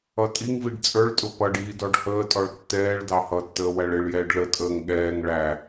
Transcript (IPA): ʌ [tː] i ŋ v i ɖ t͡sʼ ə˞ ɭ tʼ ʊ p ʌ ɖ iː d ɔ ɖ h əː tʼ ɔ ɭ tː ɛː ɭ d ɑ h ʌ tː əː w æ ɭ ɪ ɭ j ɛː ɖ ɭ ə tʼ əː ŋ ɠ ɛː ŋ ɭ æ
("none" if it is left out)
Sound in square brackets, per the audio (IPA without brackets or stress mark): tʼ